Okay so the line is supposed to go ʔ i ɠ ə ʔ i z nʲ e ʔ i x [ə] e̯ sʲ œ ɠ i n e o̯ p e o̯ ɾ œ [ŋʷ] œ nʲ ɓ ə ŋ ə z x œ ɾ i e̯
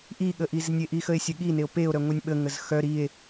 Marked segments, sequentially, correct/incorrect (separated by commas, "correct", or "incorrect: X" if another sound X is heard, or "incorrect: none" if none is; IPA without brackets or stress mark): correct, correct